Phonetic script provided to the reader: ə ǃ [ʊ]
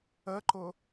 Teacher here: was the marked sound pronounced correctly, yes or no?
yes